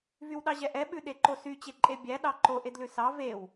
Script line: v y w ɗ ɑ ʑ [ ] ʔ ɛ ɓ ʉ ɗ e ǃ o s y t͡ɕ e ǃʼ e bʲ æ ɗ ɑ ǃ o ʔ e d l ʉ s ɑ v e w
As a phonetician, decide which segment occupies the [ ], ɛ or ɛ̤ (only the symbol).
ɛ